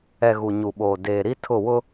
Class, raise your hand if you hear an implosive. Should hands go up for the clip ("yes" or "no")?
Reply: yes